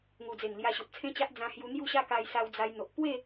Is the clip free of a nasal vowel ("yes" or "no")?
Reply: no